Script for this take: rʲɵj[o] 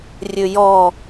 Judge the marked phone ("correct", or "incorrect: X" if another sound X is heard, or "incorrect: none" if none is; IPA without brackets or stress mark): incorrect: ɔ